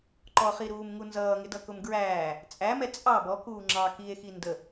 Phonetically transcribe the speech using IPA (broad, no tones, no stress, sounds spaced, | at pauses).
ǃ ɔ χ i ɾ uː m ŋ u n z ʌː ŋ ɪ d ʌ k ʊ m ɡ ɹ æː | t͡sʼ æ m ɛ t͡sʼ ɑ b ɔ k uː ŋ͡ǁ ɑ k i e̯ x i n d ə